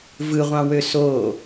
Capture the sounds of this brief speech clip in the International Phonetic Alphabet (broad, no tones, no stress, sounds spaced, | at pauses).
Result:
v ɯ ʁʷ ɑ̃ w ø s o